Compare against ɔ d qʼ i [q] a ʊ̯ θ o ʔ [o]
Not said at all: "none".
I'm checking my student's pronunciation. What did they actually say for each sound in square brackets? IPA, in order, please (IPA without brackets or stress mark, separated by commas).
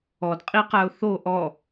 q, ɔ